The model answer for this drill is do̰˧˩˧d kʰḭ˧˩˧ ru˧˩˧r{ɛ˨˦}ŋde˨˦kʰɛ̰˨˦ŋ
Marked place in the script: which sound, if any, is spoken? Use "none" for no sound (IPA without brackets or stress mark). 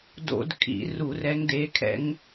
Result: ɛ˨˦